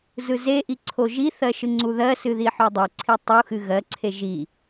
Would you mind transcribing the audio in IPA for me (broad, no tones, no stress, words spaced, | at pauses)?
zɯzeʔi ǀʰoʒiθɜ ʃɯŋ͡ǀuðɜsɨ ðiħodˤoǀʰi tˤu xɨɣɜǀʰe ʒi